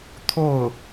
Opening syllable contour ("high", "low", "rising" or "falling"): falling